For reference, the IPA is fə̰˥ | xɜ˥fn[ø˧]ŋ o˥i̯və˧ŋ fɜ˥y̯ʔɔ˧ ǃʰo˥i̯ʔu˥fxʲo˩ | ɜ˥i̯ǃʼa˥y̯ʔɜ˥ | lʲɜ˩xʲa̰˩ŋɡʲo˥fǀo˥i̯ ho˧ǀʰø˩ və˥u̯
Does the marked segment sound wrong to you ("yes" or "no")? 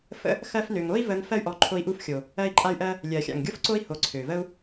no